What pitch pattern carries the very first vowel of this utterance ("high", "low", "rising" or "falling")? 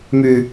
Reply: low